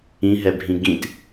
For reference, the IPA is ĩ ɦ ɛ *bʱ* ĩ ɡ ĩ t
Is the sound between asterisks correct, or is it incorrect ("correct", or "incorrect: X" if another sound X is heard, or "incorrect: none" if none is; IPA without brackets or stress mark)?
correct